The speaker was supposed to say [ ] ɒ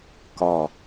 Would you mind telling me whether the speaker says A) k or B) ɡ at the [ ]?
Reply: A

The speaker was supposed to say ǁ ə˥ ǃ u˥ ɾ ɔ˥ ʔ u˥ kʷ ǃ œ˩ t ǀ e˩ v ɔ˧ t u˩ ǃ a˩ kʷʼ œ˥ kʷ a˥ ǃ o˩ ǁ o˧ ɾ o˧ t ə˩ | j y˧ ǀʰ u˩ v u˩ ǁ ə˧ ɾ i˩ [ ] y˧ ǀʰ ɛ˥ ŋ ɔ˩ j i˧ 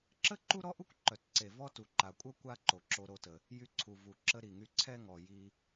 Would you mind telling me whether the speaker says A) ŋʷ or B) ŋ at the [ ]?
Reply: B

